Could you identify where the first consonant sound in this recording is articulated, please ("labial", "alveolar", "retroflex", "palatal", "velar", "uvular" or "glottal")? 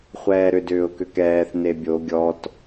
uvular